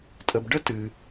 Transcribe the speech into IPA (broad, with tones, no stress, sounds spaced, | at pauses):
tʼ ə˨ b ɖ ə˥ t ɨ˨